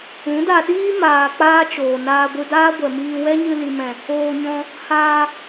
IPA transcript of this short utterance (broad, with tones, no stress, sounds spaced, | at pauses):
ũ˨˦ d a˧ ɗ iː˦ m aː˨ k͡p aː˦ t͡ʃ oː˨ n aː˧ ɡʷ ɨ˧ d aː˦ ɡʷ ɛ˨ m iː˧ w ɛ˦ ɲ ɨ˧ l i˨ m ɛ̃˨ | oː˧ ɲ ɔ̃˧ | h aː˧